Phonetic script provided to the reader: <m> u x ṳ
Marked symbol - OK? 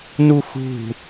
no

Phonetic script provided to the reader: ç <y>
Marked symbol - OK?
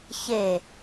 no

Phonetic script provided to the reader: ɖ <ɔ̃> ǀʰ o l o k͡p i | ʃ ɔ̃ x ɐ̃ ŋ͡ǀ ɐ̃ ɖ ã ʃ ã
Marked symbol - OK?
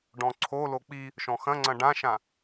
yes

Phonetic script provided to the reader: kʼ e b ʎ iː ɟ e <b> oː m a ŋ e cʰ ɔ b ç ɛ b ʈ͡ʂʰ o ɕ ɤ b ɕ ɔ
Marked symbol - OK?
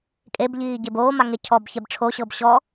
yes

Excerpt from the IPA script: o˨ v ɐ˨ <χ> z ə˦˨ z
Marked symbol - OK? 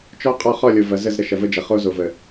no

